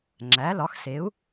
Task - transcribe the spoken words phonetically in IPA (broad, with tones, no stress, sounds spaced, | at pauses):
ŋ͡ǁ æ˩˥ l ɒ˩˥ x s e˩˥ u̯